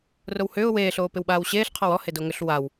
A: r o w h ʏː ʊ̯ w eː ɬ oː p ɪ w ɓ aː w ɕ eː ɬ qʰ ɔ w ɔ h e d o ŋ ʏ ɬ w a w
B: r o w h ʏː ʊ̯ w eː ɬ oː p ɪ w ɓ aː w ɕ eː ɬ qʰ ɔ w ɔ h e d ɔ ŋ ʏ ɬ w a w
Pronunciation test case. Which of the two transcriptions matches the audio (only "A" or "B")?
A